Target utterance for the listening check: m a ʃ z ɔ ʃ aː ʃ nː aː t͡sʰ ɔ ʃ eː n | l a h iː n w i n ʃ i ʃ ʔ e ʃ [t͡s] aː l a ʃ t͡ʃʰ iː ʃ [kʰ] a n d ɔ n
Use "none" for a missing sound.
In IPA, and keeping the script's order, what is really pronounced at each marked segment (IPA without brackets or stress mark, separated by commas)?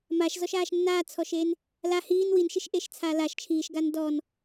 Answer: t͡sʰ, ɡ